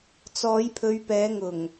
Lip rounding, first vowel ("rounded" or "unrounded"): rounded